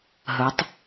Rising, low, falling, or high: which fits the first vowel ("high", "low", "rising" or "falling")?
rising